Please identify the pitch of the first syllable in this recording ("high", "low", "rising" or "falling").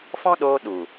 high